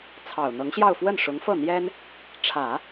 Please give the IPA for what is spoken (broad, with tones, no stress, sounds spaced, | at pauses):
t͡sʰ ɑ˨˩ ʊ̯ n̪ ɤ˧˥ ŋ ɕ j ɑ˥˧ ʊ̯ f w ə˥˩ n ʂ ʊ˧˥ ŋ f ɤ˥˩ n̪ j ɛ˥ n | ʈ͡ʂʰ ä˨˩˦